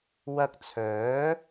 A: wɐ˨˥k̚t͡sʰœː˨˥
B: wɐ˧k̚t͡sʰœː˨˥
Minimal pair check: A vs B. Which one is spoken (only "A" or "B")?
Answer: B